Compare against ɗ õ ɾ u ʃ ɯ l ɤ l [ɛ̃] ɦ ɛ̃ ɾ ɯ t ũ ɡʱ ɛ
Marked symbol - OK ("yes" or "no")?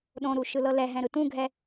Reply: no